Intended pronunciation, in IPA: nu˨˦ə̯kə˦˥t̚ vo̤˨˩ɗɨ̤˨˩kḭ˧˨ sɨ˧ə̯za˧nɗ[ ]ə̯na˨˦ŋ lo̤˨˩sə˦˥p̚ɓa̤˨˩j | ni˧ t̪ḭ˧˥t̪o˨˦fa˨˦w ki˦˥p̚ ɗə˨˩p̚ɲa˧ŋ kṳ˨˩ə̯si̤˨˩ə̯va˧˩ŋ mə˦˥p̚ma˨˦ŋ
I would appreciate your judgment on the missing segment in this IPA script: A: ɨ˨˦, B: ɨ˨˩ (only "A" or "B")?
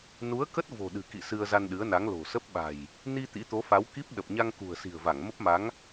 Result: A